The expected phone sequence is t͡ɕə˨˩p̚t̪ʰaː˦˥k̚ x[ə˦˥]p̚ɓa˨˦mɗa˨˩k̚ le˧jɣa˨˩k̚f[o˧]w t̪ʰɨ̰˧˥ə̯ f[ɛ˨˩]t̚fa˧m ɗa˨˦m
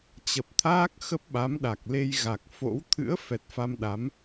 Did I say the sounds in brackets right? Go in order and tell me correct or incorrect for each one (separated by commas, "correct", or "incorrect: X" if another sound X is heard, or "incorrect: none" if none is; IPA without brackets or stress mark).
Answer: correct, incorrect: o̰˧˥, correct